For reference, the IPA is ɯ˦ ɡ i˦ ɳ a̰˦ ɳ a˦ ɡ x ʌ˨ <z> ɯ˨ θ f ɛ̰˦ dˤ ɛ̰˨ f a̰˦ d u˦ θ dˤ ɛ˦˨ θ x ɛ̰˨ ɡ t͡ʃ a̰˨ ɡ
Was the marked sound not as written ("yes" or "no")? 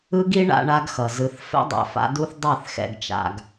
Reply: no